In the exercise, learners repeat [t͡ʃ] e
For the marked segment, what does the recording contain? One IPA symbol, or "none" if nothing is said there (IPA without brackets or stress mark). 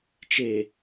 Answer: t͡ʃ